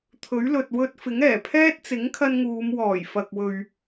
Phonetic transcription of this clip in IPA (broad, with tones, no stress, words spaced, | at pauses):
t̪ʰɵ˨˥ɥlɵ˨t̚ wɵ˧t̚ fɪ˨˥ŋɛː˨˩pʰɛː˥t̚ t͡sɪ˨˥ŋkʰɐ˧nŋuː˨˧mwɔː˨˩j fɐ˨k̚wɵ˨ɥ